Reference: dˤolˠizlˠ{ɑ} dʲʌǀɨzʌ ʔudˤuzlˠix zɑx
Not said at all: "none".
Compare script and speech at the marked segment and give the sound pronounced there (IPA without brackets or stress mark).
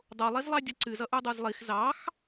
ɑ